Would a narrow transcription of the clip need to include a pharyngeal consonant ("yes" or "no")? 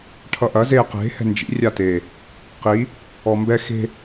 no